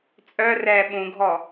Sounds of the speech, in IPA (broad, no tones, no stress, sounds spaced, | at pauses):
t͡sʼ œ r ɛː ɓ ũ ɡʱ ɔ